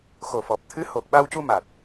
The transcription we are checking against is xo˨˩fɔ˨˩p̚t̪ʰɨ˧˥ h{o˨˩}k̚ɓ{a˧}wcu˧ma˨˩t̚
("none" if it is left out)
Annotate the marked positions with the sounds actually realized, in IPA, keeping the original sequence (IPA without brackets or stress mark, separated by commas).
o˨˩, a˧